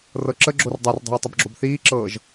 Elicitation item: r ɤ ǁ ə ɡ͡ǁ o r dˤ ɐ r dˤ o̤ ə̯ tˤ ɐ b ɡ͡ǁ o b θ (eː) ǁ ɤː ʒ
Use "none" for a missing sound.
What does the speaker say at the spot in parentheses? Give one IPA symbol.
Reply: iː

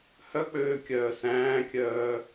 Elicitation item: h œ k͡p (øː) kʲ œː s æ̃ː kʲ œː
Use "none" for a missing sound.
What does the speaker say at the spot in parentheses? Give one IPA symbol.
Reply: øː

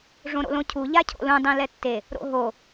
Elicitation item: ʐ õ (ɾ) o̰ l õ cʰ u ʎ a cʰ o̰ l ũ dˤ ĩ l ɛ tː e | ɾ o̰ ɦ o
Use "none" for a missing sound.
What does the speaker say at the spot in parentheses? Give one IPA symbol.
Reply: ɾ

